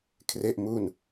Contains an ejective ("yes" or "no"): no